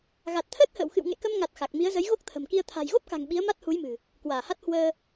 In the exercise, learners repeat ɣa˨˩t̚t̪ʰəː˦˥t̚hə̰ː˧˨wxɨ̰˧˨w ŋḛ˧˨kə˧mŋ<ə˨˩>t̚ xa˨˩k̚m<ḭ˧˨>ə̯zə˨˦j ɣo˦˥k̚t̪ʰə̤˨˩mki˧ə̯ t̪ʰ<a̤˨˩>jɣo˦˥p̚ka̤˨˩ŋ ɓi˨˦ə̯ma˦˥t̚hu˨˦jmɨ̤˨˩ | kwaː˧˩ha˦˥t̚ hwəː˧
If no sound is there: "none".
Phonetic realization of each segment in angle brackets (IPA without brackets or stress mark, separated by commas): a˨˩, i˨˦, a̤˨˩